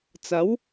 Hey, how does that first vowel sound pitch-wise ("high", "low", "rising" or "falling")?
rising